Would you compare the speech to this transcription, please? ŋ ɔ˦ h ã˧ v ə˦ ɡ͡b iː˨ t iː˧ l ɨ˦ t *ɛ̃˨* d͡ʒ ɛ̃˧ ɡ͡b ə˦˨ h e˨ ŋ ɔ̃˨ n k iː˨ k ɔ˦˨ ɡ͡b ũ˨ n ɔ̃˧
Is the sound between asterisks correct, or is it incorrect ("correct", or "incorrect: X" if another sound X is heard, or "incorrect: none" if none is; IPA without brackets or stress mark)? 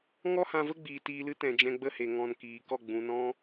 correct